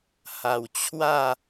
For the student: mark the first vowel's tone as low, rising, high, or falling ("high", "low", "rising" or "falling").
low